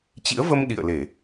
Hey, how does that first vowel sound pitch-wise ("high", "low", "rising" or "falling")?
rising